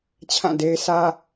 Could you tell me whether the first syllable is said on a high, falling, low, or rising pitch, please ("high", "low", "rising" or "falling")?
falling